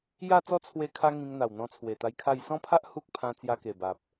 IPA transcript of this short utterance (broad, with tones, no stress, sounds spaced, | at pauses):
j a˥˧ t͡s ɔ˦ t͡sʰ w e˧ kʰ a˧ ŋ ĩ˧ ŋ n̪ a˨˩ w n̪ ɔ̃˧ t͡sʰ w e˨˩ t̪ a˧ j kʰ a˥˧ j s ɔ̃˦ pʰ a˦ ʔ h u˦ k̚ pʰ ã˧ t͡s j a˧ k e˨˩ b a˨ p̚